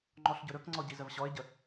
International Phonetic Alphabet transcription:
ŋ͡ǃɔɬɟɵɾɵkŋ͡ǀɔ ɟizəvɕɔɪ̯ɟə

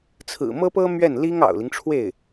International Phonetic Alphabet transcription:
t͡sʰɹ̩˨˩mɤ˥pɤ˥ mɥɛ˥˩nli˥ŋ ɑ̰˨˩ʊ̯li˦ŋʈ͡ʂʰwe˥˩ɪ̯

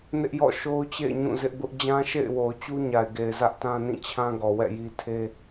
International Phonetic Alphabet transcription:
nɪ˦ʔjɔ̰˦˨ ʃo˦ʊ̯t͡ɕḛ˦˨ɪ̯ ɲũ˦˨zɪ˦ʔbʊ˦ʔ d͡ʑã˦ʃḛ˦˨ɪ̯ wo˨ʊ̯t͡ɕu˦ ɲa˨ɪ̯ɡe˨ɪ̯ zä˦ʔtã˦nĩ˦˨t͡ɕʰã˦ ɡɔ˨wɛ̰˦˨ji˦ tʰe˦

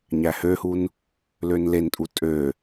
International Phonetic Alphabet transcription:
ɲæhøhun | lønlentʼu tʼø

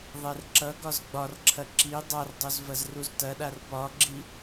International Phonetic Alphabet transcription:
ðˤɛrǁʌɡɒz ɡ͡bɒrǁʰɐ ǁi dˤardˤoz vɐzruztɐɗar pɒɡ͡ǁi

